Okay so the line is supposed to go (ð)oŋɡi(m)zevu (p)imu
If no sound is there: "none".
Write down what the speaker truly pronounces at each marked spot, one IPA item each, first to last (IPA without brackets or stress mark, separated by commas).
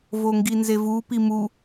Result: v, n, p